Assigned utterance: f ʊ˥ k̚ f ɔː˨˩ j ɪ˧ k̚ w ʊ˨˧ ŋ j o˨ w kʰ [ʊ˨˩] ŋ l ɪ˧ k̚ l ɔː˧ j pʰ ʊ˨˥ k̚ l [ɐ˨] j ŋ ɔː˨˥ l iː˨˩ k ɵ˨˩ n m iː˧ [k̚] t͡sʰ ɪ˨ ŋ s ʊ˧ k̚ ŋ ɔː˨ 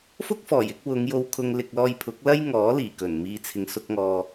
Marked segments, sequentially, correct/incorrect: incorrect, incorrect, incorrect

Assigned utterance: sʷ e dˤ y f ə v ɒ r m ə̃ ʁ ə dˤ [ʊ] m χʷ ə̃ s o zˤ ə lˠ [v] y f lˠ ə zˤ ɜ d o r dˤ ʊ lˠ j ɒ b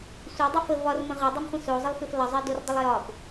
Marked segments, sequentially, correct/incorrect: correct, incorrect

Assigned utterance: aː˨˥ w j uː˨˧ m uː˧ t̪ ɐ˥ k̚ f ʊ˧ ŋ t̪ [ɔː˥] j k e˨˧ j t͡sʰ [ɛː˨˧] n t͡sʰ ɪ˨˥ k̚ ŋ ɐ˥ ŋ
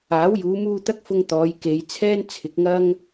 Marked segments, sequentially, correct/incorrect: incorrect, incorrect

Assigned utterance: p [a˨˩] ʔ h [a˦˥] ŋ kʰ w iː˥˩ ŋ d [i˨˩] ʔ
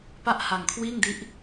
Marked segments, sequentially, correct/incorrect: incorrect, incorrect, incorrect

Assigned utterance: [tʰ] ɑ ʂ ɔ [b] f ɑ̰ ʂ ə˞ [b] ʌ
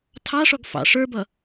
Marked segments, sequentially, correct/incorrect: correct, incorrect, correct

